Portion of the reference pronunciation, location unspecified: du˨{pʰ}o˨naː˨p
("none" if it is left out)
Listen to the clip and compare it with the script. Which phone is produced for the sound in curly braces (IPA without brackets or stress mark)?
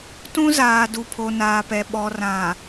pʰ